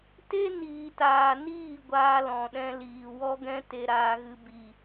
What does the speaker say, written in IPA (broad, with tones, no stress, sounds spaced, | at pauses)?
t e˦ n iː˨ t aː˨ n iː˦˨ ɡʷ aː˧ l ɔ̃˨ ɗ ɛ̃˧ l iː˨ w ɔ˧ ɡ ɛ̃˧ t e˧ ɾ aː˧ ɣ ɨ˧ b i˨